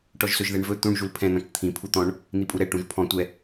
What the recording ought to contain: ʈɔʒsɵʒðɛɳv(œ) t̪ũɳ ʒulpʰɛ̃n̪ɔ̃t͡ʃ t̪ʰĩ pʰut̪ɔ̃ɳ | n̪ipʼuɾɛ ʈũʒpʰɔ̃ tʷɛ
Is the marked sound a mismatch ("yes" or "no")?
yes